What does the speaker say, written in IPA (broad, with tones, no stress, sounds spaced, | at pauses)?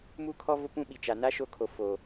m u˦ kʰ ɔ˦ v ʊ˦ p ũ˦ ɓ i˨ t͡ʃ a˨ n a˦ ʃ o˦˨ kʰ o˨ f oː˨